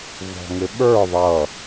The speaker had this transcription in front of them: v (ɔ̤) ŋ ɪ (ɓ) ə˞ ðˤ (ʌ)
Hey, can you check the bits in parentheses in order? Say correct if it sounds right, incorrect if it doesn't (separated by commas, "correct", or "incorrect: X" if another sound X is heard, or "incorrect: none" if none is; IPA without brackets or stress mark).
correct, correct, correct